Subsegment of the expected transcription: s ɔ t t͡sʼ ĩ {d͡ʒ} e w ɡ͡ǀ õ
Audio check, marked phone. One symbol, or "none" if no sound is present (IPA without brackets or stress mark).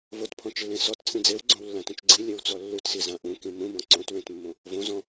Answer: d͡z